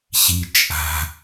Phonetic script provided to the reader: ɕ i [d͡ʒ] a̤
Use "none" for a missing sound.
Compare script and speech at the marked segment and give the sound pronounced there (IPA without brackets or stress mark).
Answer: t͡ʃʼ